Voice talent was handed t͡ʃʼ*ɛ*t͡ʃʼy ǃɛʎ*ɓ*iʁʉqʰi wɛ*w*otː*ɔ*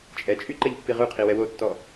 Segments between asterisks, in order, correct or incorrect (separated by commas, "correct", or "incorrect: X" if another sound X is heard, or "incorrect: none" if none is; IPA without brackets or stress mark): correct, incorrect: pː, correct, correct